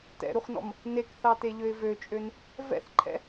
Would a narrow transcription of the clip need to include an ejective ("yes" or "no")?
yes